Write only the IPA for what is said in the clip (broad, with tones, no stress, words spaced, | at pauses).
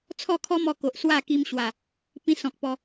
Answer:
t͡sʰɔ˥˧kʰɔ˦mɔ˧ko˨ʔ swa˥˧ki˧mɕwa˨˩ | pĩ˧sɔ̃˨k̚ pɔ˧